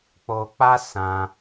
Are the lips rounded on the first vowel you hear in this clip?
yes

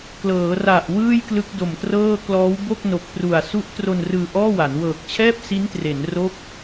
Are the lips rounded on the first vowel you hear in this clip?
no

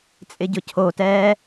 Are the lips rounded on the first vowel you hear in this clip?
no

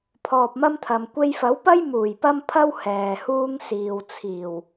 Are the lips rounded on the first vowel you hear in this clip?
yes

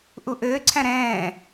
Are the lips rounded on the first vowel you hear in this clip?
yes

